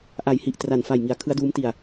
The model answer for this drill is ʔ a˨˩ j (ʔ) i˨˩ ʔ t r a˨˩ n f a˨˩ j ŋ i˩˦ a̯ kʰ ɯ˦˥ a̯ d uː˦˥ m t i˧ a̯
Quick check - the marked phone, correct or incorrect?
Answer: incorrect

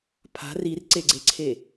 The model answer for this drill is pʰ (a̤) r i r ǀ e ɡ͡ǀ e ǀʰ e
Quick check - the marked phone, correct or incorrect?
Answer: correct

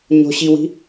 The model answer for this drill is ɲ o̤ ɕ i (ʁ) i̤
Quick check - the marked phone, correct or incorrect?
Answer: incorrect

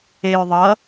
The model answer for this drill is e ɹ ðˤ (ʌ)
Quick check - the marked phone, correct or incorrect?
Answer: correct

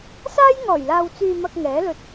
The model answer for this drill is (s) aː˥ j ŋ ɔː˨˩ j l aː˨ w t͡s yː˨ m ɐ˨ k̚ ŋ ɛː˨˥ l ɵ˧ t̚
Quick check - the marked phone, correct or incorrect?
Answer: correct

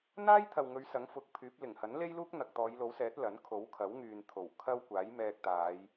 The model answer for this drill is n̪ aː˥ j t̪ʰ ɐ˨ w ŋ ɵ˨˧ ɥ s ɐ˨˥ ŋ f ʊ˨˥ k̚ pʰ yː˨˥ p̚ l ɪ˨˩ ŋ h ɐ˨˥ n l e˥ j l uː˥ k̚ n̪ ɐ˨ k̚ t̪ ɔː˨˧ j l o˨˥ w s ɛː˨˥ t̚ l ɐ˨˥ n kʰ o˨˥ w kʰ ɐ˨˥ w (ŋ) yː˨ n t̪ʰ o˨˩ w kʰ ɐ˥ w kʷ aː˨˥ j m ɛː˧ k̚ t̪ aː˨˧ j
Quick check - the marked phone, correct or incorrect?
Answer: correct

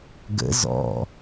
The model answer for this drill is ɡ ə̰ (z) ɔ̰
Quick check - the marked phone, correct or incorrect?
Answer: correct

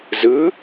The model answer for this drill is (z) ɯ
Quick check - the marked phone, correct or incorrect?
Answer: correct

